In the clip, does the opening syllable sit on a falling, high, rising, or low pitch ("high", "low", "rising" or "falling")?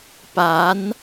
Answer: rising